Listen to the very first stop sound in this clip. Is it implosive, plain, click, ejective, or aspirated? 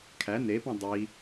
aspirated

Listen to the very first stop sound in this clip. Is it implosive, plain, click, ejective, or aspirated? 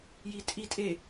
ejective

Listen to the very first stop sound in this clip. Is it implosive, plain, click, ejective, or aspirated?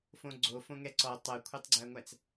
click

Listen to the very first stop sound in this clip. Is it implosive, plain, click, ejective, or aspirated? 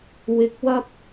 plain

